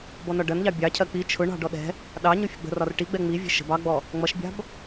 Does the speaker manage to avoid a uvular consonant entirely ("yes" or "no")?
yes